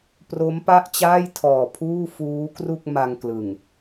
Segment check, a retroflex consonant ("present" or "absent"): absent